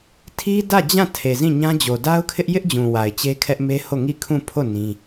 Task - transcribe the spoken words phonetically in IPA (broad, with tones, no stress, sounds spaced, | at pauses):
tʰ i˦ d ä˦˨ d͡ʑ ã˦˨ tʰ e˨ z ĩ˦˨ ɲ ã˦ d͡ʑ o˨ d a˦ ʊ̯ kʰ ɪ˦ ʔ j ɪ˦ ʔ d͡ʑ ũ˨ w a˨ ɪ̯ t͡ɕ e˦ kʰ ɛ˦ ʔ m e˦ h o˦˨ ŋ i˦˨ kʰ ũ˦˨ pʰ o˦˨ n ĩ˦